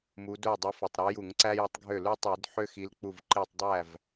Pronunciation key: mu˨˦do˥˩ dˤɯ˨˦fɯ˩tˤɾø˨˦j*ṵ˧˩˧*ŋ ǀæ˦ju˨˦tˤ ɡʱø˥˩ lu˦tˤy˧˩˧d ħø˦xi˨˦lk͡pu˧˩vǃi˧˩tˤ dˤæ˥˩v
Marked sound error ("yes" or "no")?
yes